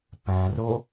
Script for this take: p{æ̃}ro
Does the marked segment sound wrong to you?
no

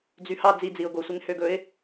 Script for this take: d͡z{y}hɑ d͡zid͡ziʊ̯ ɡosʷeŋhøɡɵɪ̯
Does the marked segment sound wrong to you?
no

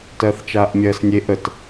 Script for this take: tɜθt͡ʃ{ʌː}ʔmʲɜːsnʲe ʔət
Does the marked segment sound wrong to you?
yes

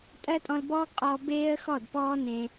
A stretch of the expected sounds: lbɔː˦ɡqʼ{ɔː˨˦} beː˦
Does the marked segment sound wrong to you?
yes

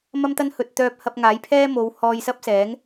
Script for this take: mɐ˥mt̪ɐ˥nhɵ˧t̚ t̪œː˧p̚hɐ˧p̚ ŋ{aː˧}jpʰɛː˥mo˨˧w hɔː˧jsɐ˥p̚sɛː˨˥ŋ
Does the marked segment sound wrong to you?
yes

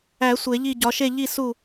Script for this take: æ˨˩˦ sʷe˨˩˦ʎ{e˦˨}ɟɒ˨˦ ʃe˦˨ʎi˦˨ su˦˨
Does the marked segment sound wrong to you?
yes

